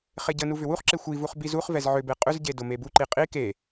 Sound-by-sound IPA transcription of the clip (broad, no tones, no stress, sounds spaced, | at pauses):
χ e ɟ ə n u v ʏ w u χ ǁ e xʷ i v u χ b i z u χ v ɛ z ʕ ʏ b e qʼ ʏ z ɟ e d ʊ m e b u ǃ i qʼ i k e